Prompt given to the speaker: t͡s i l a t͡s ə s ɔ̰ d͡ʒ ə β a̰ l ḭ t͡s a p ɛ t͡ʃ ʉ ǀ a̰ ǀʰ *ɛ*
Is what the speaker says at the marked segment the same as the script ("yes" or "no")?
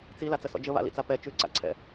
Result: no